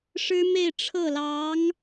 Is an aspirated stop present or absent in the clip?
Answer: present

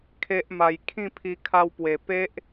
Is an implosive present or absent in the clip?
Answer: absent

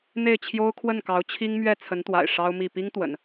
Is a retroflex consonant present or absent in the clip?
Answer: present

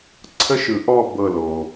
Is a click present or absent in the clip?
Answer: present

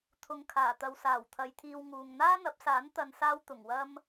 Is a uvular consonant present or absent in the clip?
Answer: absent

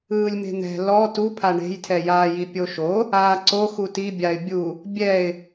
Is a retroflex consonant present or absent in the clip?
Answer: present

